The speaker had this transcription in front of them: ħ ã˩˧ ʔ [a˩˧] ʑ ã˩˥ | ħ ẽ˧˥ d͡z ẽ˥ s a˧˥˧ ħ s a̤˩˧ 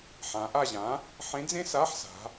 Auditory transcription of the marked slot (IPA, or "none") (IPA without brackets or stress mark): a˦˨